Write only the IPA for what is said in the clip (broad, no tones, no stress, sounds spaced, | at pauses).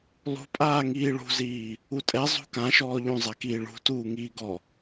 lˠ ṳ pʼ aː ŋ iː ɭ ṳ z iː | u tʼ ɛ zˤ ṳ k ã ʃ ɔː ʎ ũ zˤ a k iː ɭ ṳ t uː ŋ iː ɡ ɔ